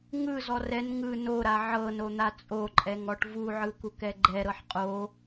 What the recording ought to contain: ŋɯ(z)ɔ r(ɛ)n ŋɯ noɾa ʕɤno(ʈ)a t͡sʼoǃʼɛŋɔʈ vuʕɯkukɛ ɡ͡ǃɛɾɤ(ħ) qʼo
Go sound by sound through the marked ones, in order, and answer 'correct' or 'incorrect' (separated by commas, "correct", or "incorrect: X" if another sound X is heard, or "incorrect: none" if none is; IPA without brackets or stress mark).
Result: correct, correct, incorrect: n̪, correct